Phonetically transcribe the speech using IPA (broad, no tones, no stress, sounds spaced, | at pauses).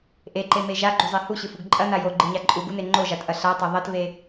ʔ e ǃ e m e ʒ a ɡ͡ǃ u zˤ e h u ɕ ɨ f u ɡ ǃʼ ɐ n a j o ɡ͡ǃ ɨ ɲ a ǃʼ u ɡ u n e ŋ͡ǃ o ʒ a t ʔ ɐ ɬ a tˤ ɐ ðˤ ɐ t v e